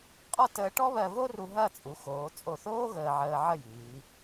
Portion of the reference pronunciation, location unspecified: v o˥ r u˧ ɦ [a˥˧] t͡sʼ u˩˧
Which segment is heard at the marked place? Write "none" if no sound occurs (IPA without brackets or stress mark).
ɐ˥˧